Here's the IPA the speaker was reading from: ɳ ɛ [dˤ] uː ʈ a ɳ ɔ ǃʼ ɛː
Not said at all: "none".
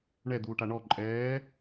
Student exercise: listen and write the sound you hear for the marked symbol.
d̪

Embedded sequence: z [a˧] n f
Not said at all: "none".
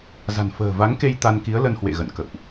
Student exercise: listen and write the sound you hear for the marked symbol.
a̤˨˩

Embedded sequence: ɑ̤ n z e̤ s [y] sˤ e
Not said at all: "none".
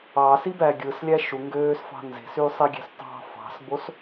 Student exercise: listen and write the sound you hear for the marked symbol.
y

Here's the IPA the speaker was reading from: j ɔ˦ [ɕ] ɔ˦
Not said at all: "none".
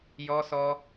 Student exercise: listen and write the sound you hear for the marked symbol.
s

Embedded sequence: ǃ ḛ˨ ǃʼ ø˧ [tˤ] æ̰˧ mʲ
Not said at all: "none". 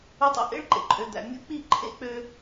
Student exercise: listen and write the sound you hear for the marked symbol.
d̪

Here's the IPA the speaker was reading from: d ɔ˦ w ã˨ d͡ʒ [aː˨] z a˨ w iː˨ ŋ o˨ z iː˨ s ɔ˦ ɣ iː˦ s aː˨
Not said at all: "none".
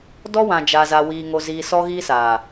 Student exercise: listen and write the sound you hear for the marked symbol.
a˨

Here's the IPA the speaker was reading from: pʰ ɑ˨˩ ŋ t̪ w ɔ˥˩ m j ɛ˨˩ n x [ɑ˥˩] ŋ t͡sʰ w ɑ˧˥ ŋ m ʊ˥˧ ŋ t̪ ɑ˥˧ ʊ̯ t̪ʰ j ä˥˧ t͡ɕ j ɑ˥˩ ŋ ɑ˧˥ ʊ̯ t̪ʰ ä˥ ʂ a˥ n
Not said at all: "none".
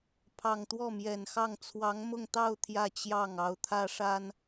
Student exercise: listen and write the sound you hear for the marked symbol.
ɑ˥˩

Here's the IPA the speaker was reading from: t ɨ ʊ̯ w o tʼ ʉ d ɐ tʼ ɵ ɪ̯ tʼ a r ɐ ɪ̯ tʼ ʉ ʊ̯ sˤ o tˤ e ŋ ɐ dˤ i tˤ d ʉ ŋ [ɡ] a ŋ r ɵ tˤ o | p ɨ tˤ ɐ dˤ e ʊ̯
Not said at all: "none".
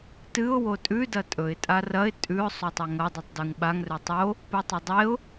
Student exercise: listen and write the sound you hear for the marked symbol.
ɓ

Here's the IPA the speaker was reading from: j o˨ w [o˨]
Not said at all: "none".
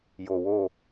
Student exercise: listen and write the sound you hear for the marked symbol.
o˦˨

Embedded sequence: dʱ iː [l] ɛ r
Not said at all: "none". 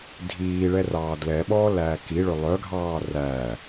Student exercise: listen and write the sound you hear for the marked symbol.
ɭ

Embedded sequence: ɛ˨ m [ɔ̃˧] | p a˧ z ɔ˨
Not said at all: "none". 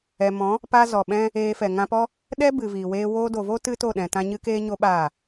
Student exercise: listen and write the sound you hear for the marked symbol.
ɔ̃˨˦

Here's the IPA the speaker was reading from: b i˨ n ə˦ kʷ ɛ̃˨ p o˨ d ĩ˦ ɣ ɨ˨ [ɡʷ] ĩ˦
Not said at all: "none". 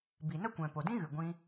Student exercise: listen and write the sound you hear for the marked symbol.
ɡʷ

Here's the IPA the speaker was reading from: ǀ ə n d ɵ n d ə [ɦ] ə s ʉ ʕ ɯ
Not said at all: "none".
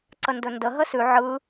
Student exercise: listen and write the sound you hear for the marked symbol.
ɦ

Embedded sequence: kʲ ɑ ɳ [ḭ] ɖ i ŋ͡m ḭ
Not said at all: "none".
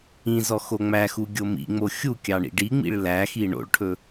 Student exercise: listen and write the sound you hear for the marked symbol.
ḭ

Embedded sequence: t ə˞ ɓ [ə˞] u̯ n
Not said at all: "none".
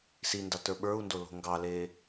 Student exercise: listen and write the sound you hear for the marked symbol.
ə˞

